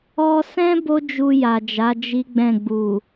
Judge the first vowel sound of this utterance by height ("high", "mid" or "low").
mid